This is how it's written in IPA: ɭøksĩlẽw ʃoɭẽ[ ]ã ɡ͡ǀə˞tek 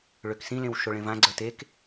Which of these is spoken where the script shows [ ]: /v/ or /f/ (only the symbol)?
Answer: v